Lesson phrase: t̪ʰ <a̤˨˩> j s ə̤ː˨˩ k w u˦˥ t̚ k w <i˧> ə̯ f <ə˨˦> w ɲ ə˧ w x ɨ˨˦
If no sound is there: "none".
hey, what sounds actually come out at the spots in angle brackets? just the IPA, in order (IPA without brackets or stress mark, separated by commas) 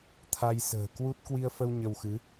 a˧, i˧, ə˧